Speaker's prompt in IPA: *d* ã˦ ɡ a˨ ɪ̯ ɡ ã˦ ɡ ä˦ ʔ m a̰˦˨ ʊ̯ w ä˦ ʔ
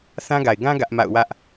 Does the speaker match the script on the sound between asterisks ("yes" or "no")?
no